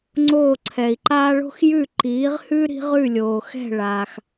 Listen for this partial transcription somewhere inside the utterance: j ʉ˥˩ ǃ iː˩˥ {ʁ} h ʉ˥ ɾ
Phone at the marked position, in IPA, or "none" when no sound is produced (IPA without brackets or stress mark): ʁ